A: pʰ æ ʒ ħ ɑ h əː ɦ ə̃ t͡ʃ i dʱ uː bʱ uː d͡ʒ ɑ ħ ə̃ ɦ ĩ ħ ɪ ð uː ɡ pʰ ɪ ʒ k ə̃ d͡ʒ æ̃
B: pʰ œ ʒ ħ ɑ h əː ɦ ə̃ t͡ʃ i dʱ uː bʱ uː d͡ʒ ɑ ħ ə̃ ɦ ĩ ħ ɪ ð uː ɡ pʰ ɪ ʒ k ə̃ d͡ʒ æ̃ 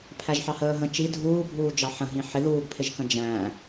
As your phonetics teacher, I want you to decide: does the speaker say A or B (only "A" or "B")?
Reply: A